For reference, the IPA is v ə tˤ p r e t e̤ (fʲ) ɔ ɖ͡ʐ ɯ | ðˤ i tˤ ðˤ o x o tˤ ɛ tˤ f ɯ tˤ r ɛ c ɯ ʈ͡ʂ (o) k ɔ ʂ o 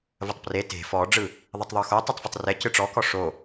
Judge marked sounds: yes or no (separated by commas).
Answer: no, no